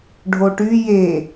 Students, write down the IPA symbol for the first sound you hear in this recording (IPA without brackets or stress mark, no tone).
ɖʱ